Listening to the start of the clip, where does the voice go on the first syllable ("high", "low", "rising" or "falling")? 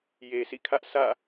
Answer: low